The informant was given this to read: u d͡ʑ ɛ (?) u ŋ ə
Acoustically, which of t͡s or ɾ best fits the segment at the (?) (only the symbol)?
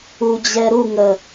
ɾ